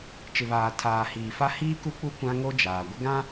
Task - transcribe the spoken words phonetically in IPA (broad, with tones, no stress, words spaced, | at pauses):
t͡ʃɪ˨βaː˨ tʰaː˨hiː˨fa˦ hiː˦ku˦k͡pu˦ kʷã˦ŋo˦ d͡ʒaː˨ ɡʷɪ˦ɡã˦